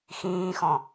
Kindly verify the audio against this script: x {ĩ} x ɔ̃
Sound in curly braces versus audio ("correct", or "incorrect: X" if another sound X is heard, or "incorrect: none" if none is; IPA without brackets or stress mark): incorrect: ĩː